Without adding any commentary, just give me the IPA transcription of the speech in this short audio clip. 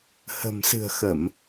h ə̤˨˩ m s ɨ̤˨˩ ə̯ x ə˧˩˨ m

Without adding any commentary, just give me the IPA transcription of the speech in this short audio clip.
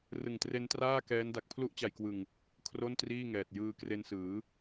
r ɯ˨˩ ŋ t r e˦˥ n t r aː˥˩ k ɛː˦˥ n d a˨˩ k̚ pʰ l u˦˥ ʔ t͡ɕ a˨˩ j k w ɯ˨˩ ŋ | kʰ r o˥˩ n t r iː˥˩ ŋ ɛː˨˩ t̚ j ɯː˧ k r e˧ n s ɯː˩˦

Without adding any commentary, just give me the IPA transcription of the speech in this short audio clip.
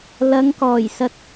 l ɐ˨˧ ŋ k ɔː˨˩ j s ɐ˧ t̚

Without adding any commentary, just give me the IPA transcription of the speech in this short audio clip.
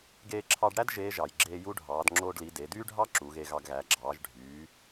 ɡ eː˧ ǁʰ ɑ˧ ɖ ɽ æ˥ d ʒ eː˧˥ ʒ ɑ˩ j ɡ͡ǁ eː˧ j u˧˥ ɖʱ ɑː˩˧ d ŋ͡ǁ oː˧ ɖ l i˩˧ d e˩˧ d yː˥ ɖʱ ɑ˥ ǁ u˩˧ ɣ e˧ ɣ ɑ˧ ɡ ɣ æ˩˧ ɡ͡ǁ ɑː˩˧ ʒ ɖʱ yː˩˧

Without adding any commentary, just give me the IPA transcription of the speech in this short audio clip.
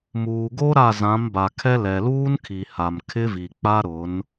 m uː˨ ɡ o˦ ɾ a˦˨ z ã˨˦ m b a˨ kʰ ɛ˦ l ɛ˨ l uː˦ n kʰ i˨ h a˨ m kʰ ɪ˦ v i˨ k͡p a˦ ɾ ʊ˨˦ n

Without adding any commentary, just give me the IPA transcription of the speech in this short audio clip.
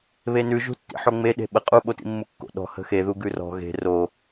β e n ʉ ʒ ṳ tː ḭ ħ o ŋ͡m e ɗ e̤ ɓ ə qʼ u ɓ o t ḭ mː u kː o̰ ɗ ɔ̤ h ə̤ x e ð u ɡ ʉ r ɔ̤ ɣ e̤ r o

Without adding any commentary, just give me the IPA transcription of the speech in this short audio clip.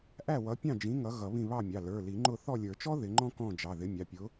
ʔ æ˦˨ w ʌ˨˦ pʲ ɑ̃˦˨ d͡ʒ ĩ˨˦ ŋ ʌ˨˦ ɣ ʌ˨˩˦ β ĩ˦˨ β ɑ˦˨ mʲ ɑ˩˧˩ l ə˞˩˧˩ l i˨˩˦ ŋ͡ǃ ʊ˦˨ θ ɔ˦˨ lʲ ə˞˨˩˦ t͡ʃ ɔ˥ ð ɪ˨˦ ŋ͡ǃ ɔ̃˥ k ɔ̃˦˨ d͡ʒ ɑ˩˧˩ ð ɪ˨˦ mʲ ɑ˩˧˩ pʲ ʊ˨˦

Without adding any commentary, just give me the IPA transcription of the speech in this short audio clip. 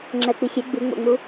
ŋ͡ǁ ɛ k͡p i xʲ e ɡ͡b ɨ ŋ͡m o̰ ŋ͡m u

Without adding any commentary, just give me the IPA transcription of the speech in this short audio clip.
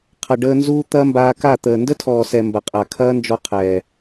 qʰ ɐ˨ ɖ əː˧ n z uː˦ t̪ ɐ˦ m b aː˧ k a˦˨ t̪ əː˨ n d ə˦ tʰ ɔː˨ s ɛ˨ m b ɐ˨ qʼ a˨ kʰ ɐː˦ n d͡ʒ ɔ˧ qʰ ɛː˨

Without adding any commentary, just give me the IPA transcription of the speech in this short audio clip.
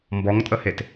m b ɔ ŋ tʼ ə h e t

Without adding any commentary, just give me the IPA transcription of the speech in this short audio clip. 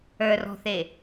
ə˞ r ɔ̤ θ e

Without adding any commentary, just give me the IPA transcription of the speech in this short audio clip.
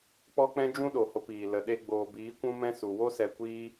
k͡p ɔ˦ k͡p ɛ̃˦ d͡ʒ ũ˦ ɗ o˨ h o˧ p iː˨ l ə˨ ɗ e˧ ɡ͡b oː˨ b iː˨˦ kʷ ũ˦ m ɛ̃˦ s u˨ w o˦ s ɛ˧ kʷ iː˦

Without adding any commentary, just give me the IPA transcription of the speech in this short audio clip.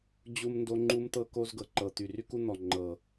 d͡ʑ u˦ m n d o˦ ŋ͡ǃ u˦ m t̪ ɤ˦ k o˦ z ɡ ɤ˨ ǃ ɤ˨ t̪ y˨ r y˦ k u˦ n̪ ɔ˨ ŋ͡ǃ ɤ˨

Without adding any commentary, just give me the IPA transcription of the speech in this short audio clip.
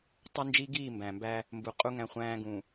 tˤ o˦ n d͡ʒ i˦ ɡ iː˦˨ m b æ̃˨ m b æ˦ | m b u˨ qʼ u˦ ŋ æ̃˦ χʷ æ̃ː˦ ɡ ũ˨

